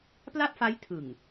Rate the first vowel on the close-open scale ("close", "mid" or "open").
open